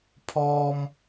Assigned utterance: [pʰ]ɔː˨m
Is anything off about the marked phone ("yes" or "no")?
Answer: no